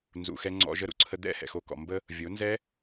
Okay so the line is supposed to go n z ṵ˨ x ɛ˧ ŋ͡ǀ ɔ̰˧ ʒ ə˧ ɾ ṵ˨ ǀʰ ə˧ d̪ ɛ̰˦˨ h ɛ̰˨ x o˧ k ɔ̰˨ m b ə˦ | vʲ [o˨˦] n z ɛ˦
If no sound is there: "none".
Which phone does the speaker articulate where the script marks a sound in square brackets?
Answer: o˨˦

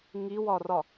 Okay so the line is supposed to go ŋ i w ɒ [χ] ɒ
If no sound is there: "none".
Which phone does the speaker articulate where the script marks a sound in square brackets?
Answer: r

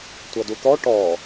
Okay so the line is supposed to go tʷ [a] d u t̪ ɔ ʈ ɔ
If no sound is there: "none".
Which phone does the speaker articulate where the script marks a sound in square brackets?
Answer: ʌ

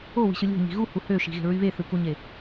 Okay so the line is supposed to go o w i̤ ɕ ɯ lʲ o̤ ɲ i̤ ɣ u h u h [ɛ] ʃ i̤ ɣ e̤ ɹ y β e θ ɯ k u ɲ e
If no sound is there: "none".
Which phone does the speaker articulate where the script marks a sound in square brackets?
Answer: ø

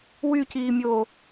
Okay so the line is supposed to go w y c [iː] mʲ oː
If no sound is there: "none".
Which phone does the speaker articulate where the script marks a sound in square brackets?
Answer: iː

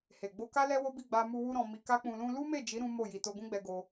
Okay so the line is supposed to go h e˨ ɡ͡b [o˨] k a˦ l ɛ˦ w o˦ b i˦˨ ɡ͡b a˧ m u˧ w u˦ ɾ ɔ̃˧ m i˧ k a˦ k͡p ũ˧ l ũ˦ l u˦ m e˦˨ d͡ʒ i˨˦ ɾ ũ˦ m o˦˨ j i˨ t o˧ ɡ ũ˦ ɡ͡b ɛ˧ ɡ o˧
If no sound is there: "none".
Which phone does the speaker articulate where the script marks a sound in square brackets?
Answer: o˧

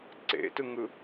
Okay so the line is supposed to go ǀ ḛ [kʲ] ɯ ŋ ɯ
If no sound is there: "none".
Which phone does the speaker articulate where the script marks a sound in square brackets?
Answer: t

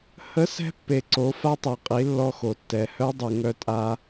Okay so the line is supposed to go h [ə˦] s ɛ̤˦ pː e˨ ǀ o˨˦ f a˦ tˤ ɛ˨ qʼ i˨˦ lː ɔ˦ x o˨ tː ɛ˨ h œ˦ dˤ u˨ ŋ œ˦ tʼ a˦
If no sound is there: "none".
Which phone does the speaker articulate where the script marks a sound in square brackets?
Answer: ə˦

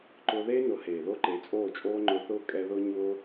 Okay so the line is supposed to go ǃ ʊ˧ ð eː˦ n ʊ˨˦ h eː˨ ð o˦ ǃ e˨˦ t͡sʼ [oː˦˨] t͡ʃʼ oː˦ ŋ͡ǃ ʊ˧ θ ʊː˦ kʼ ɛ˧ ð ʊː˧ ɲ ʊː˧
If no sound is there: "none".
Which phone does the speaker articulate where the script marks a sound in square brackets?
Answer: oː˦˨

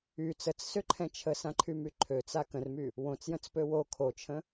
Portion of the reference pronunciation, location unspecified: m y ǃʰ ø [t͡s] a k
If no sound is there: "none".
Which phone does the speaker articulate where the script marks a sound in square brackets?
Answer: t͡s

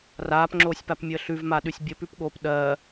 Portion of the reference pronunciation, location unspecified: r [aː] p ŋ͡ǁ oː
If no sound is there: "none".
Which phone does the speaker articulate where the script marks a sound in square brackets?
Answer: aː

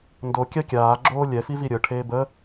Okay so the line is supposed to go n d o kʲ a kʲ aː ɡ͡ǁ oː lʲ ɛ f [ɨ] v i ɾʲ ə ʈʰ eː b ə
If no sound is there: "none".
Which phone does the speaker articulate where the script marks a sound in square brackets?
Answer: i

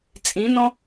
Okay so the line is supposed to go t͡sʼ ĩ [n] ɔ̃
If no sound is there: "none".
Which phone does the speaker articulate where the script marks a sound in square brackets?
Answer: n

